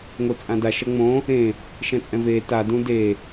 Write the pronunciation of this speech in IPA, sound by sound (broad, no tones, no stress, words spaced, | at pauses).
ŋot͡sʼãda ʃʌŋ͡mõ | ẽ | ʃɛ̃t͡sʼɛ̃veː ta dũde